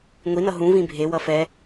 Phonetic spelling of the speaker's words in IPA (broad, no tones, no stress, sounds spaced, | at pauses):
ŋʷ i n ʌ ɦ ũ v ĩ bʱ e w ʌ f ɛ